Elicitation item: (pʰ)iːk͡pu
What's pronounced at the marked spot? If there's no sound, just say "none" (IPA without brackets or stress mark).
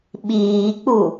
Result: ɓ